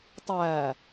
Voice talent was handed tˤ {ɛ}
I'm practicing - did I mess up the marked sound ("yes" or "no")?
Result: yes